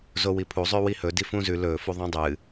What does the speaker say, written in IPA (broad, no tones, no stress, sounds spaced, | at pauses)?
z o w i pʰ u zˤ ʉ w i h ɵ d i f ũ z ʉ l ɵ f u ðˤ ĩ dˤ ɨ